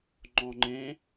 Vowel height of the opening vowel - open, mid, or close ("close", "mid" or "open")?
mid